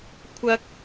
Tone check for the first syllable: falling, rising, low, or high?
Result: high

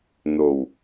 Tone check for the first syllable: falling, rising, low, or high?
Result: low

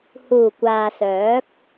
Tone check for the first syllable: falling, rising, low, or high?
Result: low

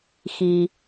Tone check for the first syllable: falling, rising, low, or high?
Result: low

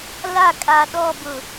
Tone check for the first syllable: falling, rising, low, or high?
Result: falling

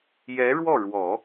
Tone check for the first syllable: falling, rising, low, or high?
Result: rising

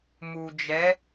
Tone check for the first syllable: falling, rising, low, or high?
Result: low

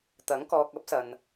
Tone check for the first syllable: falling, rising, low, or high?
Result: rising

